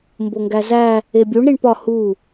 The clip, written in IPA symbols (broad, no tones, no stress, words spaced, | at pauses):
mboŋɡæzæ | ebʲuɳ ɾiɳpɒ hu